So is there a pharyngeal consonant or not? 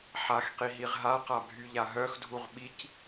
yes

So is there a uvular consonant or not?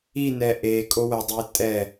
no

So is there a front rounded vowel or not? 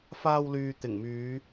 yes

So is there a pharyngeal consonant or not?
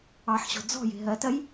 yes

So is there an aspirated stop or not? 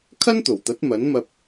yes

